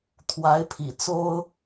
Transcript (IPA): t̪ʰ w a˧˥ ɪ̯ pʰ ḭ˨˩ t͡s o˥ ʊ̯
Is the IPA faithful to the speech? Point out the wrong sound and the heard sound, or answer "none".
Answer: none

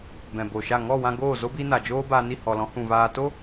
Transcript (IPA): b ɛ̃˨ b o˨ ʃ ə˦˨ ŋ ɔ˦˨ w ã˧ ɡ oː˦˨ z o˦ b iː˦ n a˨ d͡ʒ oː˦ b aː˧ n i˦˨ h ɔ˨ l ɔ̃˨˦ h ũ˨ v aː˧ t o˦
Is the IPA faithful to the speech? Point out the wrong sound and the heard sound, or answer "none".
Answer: ə˦˨ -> a˦˨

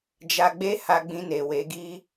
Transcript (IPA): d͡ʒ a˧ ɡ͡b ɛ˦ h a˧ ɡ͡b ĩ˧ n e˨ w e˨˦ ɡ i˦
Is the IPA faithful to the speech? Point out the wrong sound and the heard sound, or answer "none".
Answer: ɛ˦ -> e˦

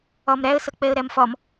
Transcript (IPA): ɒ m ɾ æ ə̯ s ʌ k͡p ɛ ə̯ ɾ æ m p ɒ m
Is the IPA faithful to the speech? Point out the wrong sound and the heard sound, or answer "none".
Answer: p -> f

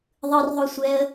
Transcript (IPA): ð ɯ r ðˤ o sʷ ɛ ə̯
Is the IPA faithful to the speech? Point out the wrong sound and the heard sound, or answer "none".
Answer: ð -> ðˤ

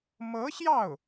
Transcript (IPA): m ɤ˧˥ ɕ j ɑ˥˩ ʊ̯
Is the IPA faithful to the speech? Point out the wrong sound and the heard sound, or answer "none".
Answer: none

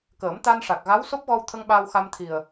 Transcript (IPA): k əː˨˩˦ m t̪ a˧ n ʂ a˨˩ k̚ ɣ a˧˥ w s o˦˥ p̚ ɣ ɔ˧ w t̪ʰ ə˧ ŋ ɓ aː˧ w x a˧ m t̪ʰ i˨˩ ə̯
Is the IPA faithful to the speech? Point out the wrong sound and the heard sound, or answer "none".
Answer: none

